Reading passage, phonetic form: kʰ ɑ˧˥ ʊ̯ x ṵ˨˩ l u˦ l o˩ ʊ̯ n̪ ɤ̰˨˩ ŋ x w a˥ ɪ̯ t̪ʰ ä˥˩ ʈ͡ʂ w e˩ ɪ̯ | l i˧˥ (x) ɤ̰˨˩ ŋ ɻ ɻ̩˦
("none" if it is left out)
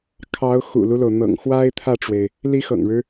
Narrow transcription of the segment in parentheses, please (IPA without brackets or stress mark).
x